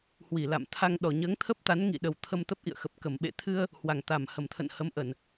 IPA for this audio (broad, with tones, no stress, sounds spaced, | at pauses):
h w i˧˩ l a̰˧˨ m t̪ʰ a˧ ŋ ɗ ɔ˨˩ ɲ əː˨˦ ŋ t̪ʰ ə˦˥ p̚ t̪ a˨˦ n ŋ ḭ˧˨ ɗ ə˨˩ w t̪ʰ ə˧ m t̪ ə˦˥ p̚ ʔ ḭ˧˨ ə̯ x ə˨˩ p̚ k ə˧˩ m ɓ ḛ˧˨ t̪ʰ ɨ˧ ə̯ | h w a˨˩ ŋ t̪ a˨˩ m h ə˨˩ m t̪ʰ ə̰˧˨ n h ə˨˦ m ʔ ə˧˩˨ n